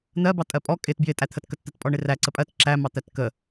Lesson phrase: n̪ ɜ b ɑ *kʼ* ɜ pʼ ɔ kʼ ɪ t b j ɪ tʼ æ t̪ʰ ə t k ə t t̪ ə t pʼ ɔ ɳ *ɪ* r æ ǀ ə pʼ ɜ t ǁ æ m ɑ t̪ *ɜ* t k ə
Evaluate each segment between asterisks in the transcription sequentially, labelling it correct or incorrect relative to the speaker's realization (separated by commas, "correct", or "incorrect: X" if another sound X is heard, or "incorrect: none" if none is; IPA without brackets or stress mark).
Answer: incorrect: tʼ, correct, incorrect: æ